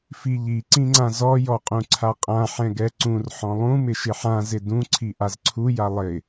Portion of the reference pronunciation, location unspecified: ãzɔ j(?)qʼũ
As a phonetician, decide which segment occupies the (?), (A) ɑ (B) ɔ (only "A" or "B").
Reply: B